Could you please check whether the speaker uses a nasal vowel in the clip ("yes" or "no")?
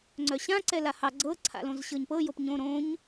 yes